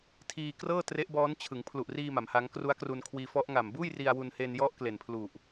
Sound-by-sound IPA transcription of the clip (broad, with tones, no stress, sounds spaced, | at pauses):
tʰ iː˧ k r ɤː˥˩ t r e˦˥ ʔ b ɔː˦˥ n t͡ɕʰ ɯ˩˦ ŋ pʰ l u˨˩ ʔ r iː˧ m a˩˦ m h a˦˥ ŋ k r u˦˥ a̯ k r u˧ n kʰ w iː˧ f ɔ˦˥ ʔ ŋ a˨˩ m b uː˥˩ j r i˧ a̯ w u˧ n h e˧ n j ɔ˦˥ ʔ k l e˨˩ n pʰ l u˨˩ ʔ